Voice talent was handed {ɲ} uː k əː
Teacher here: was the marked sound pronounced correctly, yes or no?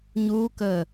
yes